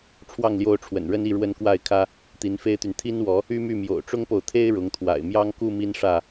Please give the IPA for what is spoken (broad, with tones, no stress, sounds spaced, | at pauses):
ʈ͡ʂʰ w ɑ˥˨ ŋ l j o˦ ʊ̯ ʈ͡ʂʰ w ə̰˨˩ n ɻ ə˦ n i˥˨ ɻ w ə˦ n k w a˥˨ ɪ̯ kʰ ä˦ | t̪ i˨˦ n f e˦ ɪ̯ t̪ y˨ n t̪ʰ i˦ n w ɔ˨˦ | y˦ m y˥˨ m j o̰˨˩ ʊ̯ ʈ͡ʂ ʊ˦ ŋ p o˨ ʊ̯ t̪ʰ e˦ ɪ̯ ɻ ʊ˨˦ ŋ t̪ʰ w a̰˨˩ ɪ̯ m j ɑ˦ ŋ k u˥˨ m i˦ n ʂ ä˥˨